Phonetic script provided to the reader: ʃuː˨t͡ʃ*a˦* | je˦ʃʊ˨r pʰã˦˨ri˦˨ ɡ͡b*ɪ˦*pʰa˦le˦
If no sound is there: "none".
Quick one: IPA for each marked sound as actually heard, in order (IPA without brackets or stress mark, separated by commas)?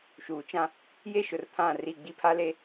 ã˦, i˦